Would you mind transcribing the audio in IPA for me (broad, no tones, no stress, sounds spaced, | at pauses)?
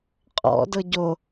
qʼ ɔ̰ d ɤ ɟ o